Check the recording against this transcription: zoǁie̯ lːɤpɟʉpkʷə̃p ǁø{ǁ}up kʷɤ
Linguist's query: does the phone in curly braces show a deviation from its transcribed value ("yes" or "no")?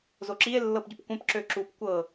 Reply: no